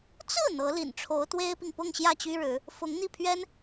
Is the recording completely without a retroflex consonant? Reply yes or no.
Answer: no